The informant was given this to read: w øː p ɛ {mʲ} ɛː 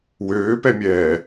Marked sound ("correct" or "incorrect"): correct